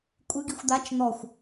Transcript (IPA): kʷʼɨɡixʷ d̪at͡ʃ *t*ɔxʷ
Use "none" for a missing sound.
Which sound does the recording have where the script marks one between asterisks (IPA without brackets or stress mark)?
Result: n̪